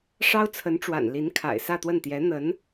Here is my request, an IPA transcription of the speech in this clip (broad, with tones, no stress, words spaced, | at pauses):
ʂɑ˥ʊ̯t͡sʰə˧˥nʈ͡ʂwa̰˨˩n li˧˥nkʰa̰˨˩ɪ̯sä˥˧t̪wə˥˩n t̪jɛ˧˥n̪ə˧˥n